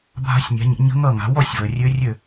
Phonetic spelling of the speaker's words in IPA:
bʱ a̤˧˥ sʲ nʲ a̤˩˥ ɲ ə̰˩˥ ɲ ə̤˧˥ ŋ ʌ˥˩ ŋ a̤˩˥ w ɔ˥˩ sʲ v ə˩ rʲ ø˧˥ rʲ ø˥˩

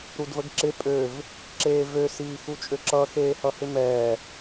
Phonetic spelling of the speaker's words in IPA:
ɾ u d v ə ɡ ǁ ɪ pʼ ø v | ǁ eː v ø s iː x u t͡ʃʼ ø ǁ ʌː x eː h ʌ h ɪ m ɛː

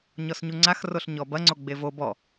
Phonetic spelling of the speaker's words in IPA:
ɲ ɔ s ɲ u ŋ͡ǀ a x r o ɬ ɲ ɔ b ɐ ŋ͡ǀ o ɡ͡b e v o b ɔ

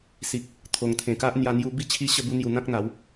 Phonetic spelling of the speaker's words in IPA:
s i˨ k̚ | t̪ʰ o˨˩ ŋ t̪ʰ ẽ˨˩ k a˦ ʔ n̪ j a˧ n̪ j u˧ b i˥˧ t͡ɕʰ i˦ ɕ ə˥˧ b u˦ n̪ j u˧ n̪ ã˦ k̚ n̪ a˨˦ w

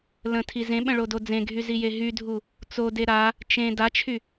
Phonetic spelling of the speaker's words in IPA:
l ə̃ tʰ i z ẽ ɓ ə̃ ɭ o d o d͡z ẽ ɡʱ y z i j e ɦ y dʱ u | t͡s o d e ɾ a | t͡ʃ ẽ d a t͡ʃʰ y

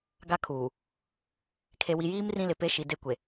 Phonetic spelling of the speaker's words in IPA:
ɡ a˦ kʰ uː˨ | kʰ e˨ w i˨ j iː˦ m r ĩ˦ l ɪ˨ p e˦ ʃ i˨ d e˦ kʷ e˨

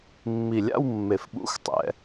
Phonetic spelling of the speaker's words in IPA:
mː i˨˩ lʲ a̰˥˧ w mː e˨˩ f ɓ ṵ˧˥˧ x tˤ ɛ̰˨˦

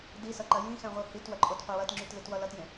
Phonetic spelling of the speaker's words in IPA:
d i s ʌ ǃ ɐ j ĩ x ɛ̃ ʁʷ i h i t w ɐ ǃʼ o t qʷ ɐ w ɐ t ŋ͡ǁ y t l ɪ t w ʌ l ʌ t j ẽ

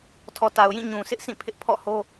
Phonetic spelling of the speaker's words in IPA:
tʰ ɔ˨ t a˨ ʊ̯ j ĩ˦˨ ɲ ũ˨ sʰ ɪ˦ ʔ sʰ ĩ˦˨ pʰ ɪ˦ ʔ pʰ ɔ̰˦˨ h o˦

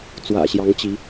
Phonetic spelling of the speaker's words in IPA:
t͡s w ä̰˨˩ ɕ j ɑ˨˦ ŋ t͡ɕ i˨˦

